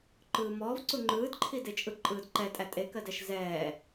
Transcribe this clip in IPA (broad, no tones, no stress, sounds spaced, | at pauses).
ǃ ɯː m ɔː v ǀ u ŋ͡ǃ ɯː d ǃʰ i d e t͡ʃʼ ɯ ǃʼ ɯː d ǃ ɛ tʼ æ tʼ e k ɜ d ɛ ʃ z ɛː